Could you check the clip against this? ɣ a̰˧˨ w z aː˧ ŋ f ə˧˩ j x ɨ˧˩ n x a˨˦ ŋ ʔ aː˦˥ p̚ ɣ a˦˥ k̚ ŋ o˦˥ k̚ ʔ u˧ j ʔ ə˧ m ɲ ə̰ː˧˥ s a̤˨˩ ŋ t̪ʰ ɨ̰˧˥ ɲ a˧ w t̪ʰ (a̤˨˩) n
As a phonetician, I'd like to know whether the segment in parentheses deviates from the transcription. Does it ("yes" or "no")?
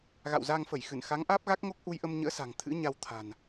no